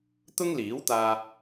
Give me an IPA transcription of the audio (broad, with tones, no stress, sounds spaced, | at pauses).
t̪ ʊ˥ ŋ l iː˨˥ w t̪ aː˧